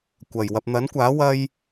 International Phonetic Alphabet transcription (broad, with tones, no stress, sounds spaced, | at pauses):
kʷ ɐ˨˩ j w ɐ˧ p̚ n̪ ɐ˨˥ n kʷ aː˨˥ w ɐ˥ j